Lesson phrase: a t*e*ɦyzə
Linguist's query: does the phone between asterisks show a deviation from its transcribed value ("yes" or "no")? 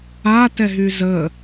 yes